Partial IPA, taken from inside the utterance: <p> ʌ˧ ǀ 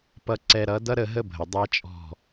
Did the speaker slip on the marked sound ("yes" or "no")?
no